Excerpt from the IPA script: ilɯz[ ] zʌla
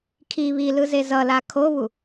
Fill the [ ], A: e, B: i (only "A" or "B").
A